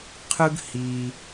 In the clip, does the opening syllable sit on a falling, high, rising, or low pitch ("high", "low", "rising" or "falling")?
high